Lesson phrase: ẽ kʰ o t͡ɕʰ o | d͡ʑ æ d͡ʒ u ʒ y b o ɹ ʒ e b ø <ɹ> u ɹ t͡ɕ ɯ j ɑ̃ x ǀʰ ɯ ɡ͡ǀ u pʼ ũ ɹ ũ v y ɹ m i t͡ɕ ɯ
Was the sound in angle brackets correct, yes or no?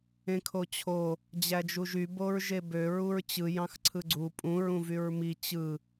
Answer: yes